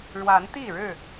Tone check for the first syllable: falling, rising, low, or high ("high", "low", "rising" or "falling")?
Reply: rising